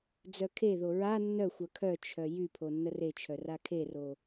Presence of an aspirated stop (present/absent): present